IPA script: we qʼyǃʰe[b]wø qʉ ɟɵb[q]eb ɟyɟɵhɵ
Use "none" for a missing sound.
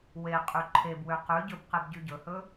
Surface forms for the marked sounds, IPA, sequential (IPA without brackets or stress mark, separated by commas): b, q